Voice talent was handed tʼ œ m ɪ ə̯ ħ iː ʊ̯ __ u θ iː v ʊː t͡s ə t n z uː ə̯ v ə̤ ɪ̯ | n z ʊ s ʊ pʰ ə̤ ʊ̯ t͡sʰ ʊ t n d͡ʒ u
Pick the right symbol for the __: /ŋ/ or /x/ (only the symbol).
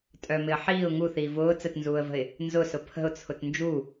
ŋ